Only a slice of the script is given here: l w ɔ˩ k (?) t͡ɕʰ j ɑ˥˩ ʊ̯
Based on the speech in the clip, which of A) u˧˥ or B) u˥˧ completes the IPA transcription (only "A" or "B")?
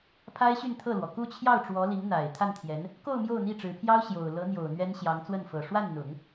B